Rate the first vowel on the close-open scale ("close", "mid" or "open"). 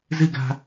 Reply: close